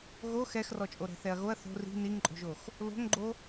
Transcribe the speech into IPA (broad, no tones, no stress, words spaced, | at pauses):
ɣo xɛxrɔt͡ʃʼo ɾɛ̤θɛɐ̯ɣoɐ̯ θo̤ ri̤ niŋǃʼo̤ʒox | lo̤ŋɡ͡ǃo